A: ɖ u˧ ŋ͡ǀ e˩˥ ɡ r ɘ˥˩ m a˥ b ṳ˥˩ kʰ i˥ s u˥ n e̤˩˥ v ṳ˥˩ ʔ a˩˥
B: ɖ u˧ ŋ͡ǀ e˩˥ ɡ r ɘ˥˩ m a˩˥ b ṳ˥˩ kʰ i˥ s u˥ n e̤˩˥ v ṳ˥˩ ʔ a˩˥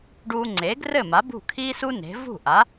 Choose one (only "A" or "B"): B